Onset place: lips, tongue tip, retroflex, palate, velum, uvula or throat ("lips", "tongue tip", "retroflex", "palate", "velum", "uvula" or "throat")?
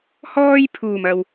throat